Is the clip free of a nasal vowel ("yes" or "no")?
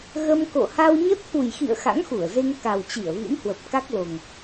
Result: yes